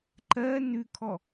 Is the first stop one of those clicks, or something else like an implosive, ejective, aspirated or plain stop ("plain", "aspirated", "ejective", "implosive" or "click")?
click